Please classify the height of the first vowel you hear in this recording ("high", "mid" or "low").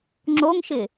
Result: mid